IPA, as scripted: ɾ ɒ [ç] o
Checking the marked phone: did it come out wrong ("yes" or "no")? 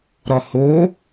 yes